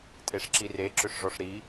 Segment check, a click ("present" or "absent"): present